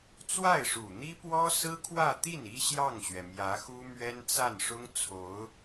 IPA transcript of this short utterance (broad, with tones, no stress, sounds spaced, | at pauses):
t͡s w a˥˩ ɪ̯ ʂ u˨˩ n̪ i˥ p w ɔ˥ s ɹ̩˥ kʰ w ä˥˧ t̪ i˥˩ n i˥ ɕ j ɑ˥˩ ŋ ɕ ɥ ɛ˩ m j ä˧˥ x u˥ m ɥ ɛ˥ n t͡s a˥˩ n ʂ ʊ˥ ŋ t͡sʰ o˧˥ ʊ̯